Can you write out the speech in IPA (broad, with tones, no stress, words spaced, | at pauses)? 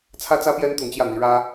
t͡sʰä˥t͡sä˥pjɛ˥n t̪ʊ˧˥ŋt͡ɕjä˥˩n̪i˧˥ɻä˥